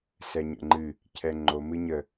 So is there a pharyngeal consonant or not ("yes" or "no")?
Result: no